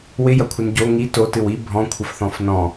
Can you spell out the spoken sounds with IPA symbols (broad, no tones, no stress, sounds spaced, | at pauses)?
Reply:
w ɪ j ɐ kʷʰ ɪ n ɟ o ŋ i t o t ɨ w i bʱ ɔ̃ kʷʰ ə f θ ɔ̃ f n ɔ̃